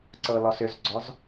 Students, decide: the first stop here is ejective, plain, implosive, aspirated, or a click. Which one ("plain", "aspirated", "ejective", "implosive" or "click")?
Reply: click